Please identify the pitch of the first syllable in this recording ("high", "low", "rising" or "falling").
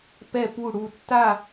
falling